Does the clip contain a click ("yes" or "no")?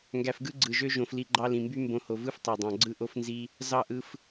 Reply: yes